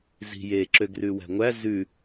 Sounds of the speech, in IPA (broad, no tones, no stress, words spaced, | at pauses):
zi̤je ǁøɡrʉwæ̤ŋʷæ zʉ